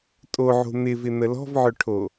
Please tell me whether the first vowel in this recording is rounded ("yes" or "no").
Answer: yes